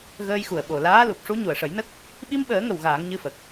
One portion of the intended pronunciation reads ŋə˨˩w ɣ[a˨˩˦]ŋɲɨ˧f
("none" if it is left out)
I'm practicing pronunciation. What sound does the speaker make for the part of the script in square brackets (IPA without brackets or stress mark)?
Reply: aː˨˩˦